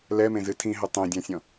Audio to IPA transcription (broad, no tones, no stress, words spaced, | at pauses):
lɛmẽzɨ tʰĩɦɘ tˤẽdʲãsʲɔ̃